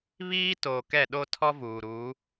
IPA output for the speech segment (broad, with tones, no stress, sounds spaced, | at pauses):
β iː˦ t oː˨ k ɛ˦˨ ɗ o˦ tʰ ɔ˦ v uː˨ ɾ uː˨˦